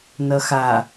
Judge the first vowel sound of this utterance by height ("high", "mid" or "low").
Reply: mid